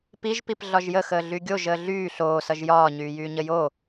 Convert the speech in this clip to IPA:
piʒpip ɮɒʒjəxəː ɮyɡʲoʒ əːɮyː ɬoːsʌʒ jɒː ɲyːjyːɲəjo

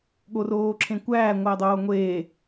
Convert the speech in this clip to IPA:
ɠoroːǁʰẽkʷæː ŋʷædˤoːŋʷeː

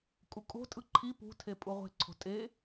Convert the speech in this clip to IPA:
kʼukʼo̤tʼɯ ǃʰi pṳtʰe pʼuʁʷe̤ǀʰo̤ tʼe

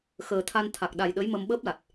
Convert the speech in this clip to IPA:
xəː˨˩t̪ʰa˧n t̪ʰa˨˩k̚ɗa˨˩j ɗə˧˥jmə˧m ɓəː˦˥p̚la˨˩t̚

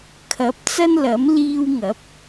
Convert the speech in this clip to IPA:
kʰɐ˨˥p̚t͡sɐ˥nlɐ˨˥m liː˧wŋɐ˨˥p̚

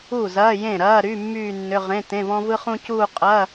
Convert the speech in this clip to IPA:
u˥˩ zɐː˧˥˧jẽ˥˩ɾɐː˧˥˧ɾy˧˥˧ mːyː˥˧nːʏ˧˥˧ ʁẽ˧˥˧ tẽ˧˥˧vɔ̃˥vɯ˥χũ˥ cuː˥˧qʼɐː˧˥˧

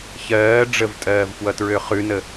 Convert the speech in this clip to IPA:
çɜː ɖ͡ʐəvtʼɜːvfwʌtɹø χʉnə

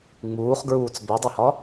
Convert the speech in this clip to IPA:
ŋ͡muːχɡɹuːt͡s bedˤehɒ

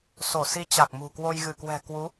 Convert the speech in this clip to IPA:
so˧˩si˨˦ t͡ɕa˨˩k̚mṳ˨˩kwo˧j ɣɨ˧˩kwɛ̤˨˩kwu˨˦

